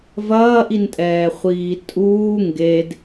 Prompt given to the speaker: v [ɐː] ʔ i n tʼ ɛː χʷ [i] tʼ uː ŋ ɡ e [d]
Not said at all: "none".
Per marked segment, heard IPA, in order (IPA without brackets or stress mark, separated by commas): ɐː, iː, d